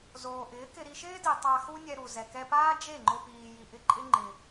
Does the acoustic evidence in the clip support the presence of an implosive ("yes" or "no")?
no